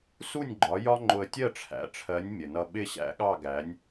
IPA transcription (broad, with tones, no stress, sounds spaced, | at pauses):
s u˥˩ nʲ ɡ͡ǃ ɒ˩˥ j ɒ˥ ŋ͡ǃ ʊ˧ ə̯ tʲ ɜ˥˩ ʈ͡ʂʰ æ̰˩˥ ʈ͡ʂʰ ɜ˩˥ nʲ mʲ ə˩ n ʌ˧ ɓ ɪ˥˩ ɕ æ̰˥ ɠ ɑ˥˩ ɡ æ˩˥ nʲ